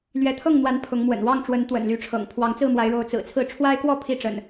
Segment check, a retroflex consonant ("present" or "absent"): present